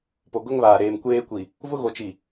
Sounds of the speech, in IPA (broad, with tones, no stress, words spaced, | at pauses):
po˨ɡʊ˦ŋβaː˨ ɾeː˨mkʷeː˦kʷi˨ | vʊ˦ɣo˨t͡ʃi˨